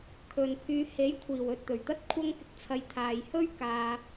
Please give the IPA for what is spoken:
kʰ ɵ˨ n pʰ yː˧ h e˨˥ j kʷʰ iː˨˩ w ɵ˨ t̚ t̪ ɵ˨˩ ɥ t̪ ɐ˥ t̚ kʷʰ ɐ˥ ŋ k ɪ˥ k̚ t͡sʰ ɐ˧ j t̪ʰ aː˨ j h ɵ˥ ɥ k aː˧

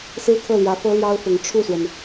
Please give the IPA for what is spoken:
s ɹ̩˥ kʰ ɤ˥˩ l j ä˧˥ f ɤ˥ l j ɑ˥ ʊ̯ f ʊ˧˥ ŋ ʈ͡ʂʰ u˥˩ s w ə˩ n

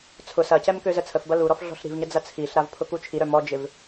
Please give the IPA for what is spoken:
t͡sʰ ʊ s ɐ c ɛ m k ø z ə t͡sʰ ə f b ɐ l u ɾ ɔ f ɮ ɔ̤ ɬ ɾ i̤ v ɲ ə d͡z ɐ t͡sʰ i ɬ ɾ a v pʰ ʊ k u t͡ʃʰ i ɾ œ m ɔ d͡ʒ ɪ v

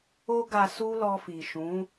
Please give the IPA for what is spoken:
o˦ ɡ a˧ s u˦ l ɔ˧ f i˨ ʃ ũ˨˦

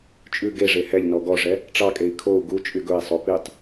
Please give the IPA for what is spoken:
t͡ʃʼ ʉ ɡ e ʐ e h ɛ ʎ n ɔ ɡ ɔ ʐ ɛ | ʈ͡ʂ ɑ kʼ e i̯ kʰ o u̯ ɡ u t͡ʃʼ y ɡ ɵ i̯ sˤ o p i tˤ

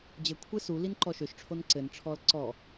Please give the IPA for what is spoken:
d͡ʑ ɘ kʷʰ e s u l i n ǃ ɔ ʃ ø ʃ ʈ͡ʂʰ o n ǀ ɘ n ʈ͡ʂʰ ɔ l ǀ ɔ

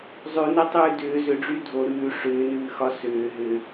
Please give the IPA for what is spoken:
zˤ ʉ n ɛ tˤ ʉː d ʏː z ʏ ɖ͡ʐ y dʱ o ɾ ʉː ʂ ʏː n ʉː x ɒ s ʏː ɦ ʏ

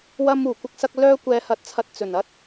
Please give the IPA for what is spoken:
w ɐ˧ m uː˨˩ kʷ ɐ˥ k̚ s ɐ˥ k̚ l œː˥ kʷ ɛː˧ h ɐ˧ t̚ t͡sʰ ɐ˧ t̚ t͡s ɵ˨˩ n ɐ˥ t̚

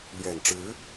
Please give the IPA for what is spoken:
l ɥ ɛ˨˩ n ʈ͡ʂ ɻ̩˧˥

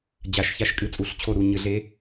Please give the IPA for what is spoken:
d͡ʑ a˧˩˧ ʃ ç a˦˨ ʃ kʼ ɨ˧˥ t͡sʼ u˧˩˧ ɬ t͡ɕʰ o˦˨ ɾ u˦˨ ɲ ɨ˧˩˧ ɮ e˧˥

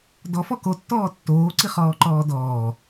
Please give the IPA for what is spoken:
d ɔ f ɔ k o tː ɔː tː oː ǀ i χ ɔː ǃ ɔː d ɔː

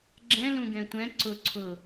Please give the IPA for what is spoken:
ɡ͡ǁ ɛ̃ l ũ ɡ ɛ̃ tʷ ɛ̃ ǀ ʊ ǀʰ ʊ

